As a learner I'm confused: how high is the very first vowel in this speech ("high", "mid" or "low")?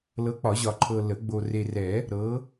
mid